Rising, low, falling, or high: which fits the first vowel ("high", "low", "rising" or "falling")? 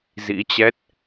rising